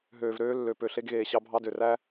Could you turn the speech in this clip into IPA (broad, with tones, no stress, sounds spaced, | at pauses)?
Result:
ɦ øː˨ v ɾ øː˧ lː ø˨ p ø˨ ɬ e˧ ɡ ɣ eː˨ ɕ ɑ˧ bʱ ɑ˧ d ø˨ r æ˦